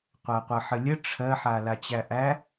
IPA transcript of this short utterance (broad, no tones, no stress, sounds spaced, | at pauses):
qʷ æ qʷ ɜ ħ ə lʲ ə ʈ͡ʂʰ ɜ ħ a l a t͡ɕ æ ʔ æ